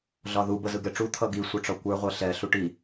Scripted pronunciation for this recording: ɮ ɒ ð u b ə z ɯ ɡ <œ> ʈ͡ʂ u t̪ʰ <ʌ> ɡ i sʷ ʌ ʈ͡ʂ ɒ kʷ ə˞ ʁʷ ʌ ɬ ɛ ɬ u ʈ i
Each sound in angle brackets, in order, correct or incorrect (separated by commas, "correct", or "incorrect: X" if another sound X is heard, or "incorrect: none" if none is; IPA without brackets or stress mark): incorrect: ɛ, correct